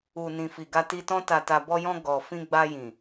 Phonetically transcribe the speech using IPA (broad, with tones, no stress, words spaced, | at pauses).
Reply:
u˨nĩ˨ fi˨ɡa˧ti˧tɔ̃˦ ta˧ta˧ bɔ˧jɔ̃˧ ɡɔ˨ fĩ˧ɡ͡ba˧jĩ˨